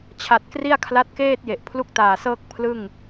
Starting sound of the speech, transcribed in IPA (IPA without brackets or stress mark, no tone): t͡ɕʰ